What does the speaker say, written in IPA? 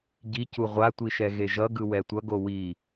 ɟ i c u ʁʷ a tʷ i ʃ ɛ ɣ e ʒ ʌ ɡ ɯ w ɛ tʷ ʌ ɡ o w i

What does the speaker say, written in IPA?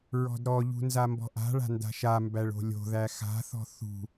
ɹ ɔ̤ d ɾ ɔ ʎ ṳ n z a m b ɔ̤ ʔ a̤ ɭ a̤ n d a̤ ʃ a m b æ ɭ o̤ lʲ o̤ ð æ x a̤ θ ɔ̤ θ ṳ

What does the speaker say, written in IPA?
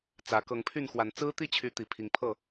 t͡s ä˨˦ k ɤ˨˦ ŋ pʰ y˥˨ n x w a˨˦ n t͡s ɹ̩˦ t̪ i˥˨ t͡ɕʰ y˨˦ t̪ i˨˩ pʰ i˨˦ ŋ pʰ ɤ˥˨

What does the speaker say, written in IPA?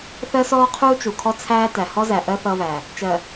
θ ɜ˦ s ɔː˦ qʰ uː˦ t͡ʃ u˨ kʰ ɔ˦ t͡sʰ æː˦ t æ˨ h ɔ˦ z æ˨ ʔ ɜ˦ θ ʌː˦ β æ˨ | t͡ʃ ɜ˨

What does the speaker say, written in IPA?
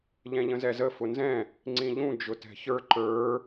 ʎ ɛ̃ ʎ ə̃ z ɛ z ə f ʊ n z ɛ̃ | ŋ͡ǀ ĩ ʎ ũ d͡ʒ ʊ t ɛ̤ ç ə˞ ǃ ə˞

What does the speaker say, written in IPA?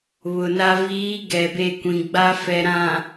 β ʊ˨ n a˨ v iː˨˦ ɡ ɛ˨ b e˦˨ kʷ ĩ˨ ɡ͡b a˦ f ɛ˨ ɾ ã˨

